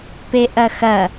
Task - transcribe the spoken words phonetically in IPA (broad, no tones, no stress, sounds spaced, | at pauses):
p e ʔ ɐ x ɐ